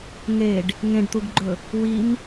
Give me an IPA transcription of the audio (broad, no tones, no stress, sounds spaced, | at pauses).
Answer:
ŋ e ɖ | ŋ ẽ ɖ t̪ u ɡ ɡ͡ǃ ɵ | w i m